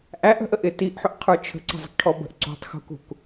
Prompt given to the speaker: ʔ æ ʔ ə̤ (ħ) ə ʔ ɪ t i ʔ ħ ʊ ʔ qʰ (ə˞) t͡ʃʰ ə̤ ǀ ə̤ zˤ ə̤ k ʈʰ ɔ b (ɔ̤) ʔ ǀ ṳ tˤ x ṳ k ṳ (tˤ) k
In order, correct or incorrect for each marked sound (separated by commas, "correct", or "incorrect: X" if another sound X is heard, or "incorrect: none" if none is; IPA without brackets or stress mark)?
incorrect: ʔ, correct, incorrect: ə̤, incorrect: none